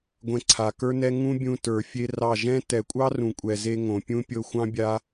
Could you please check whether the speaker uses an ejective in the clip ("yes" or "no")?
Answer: yes